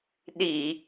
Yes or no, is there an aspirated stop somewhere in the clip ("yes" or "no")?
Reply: no